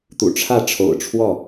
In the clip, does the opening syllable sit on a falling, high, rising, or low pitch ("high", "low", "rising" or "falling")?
low